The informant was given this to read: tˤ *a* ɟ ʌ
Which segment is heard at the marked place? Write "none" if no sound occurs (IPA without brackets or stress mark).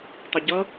ʌ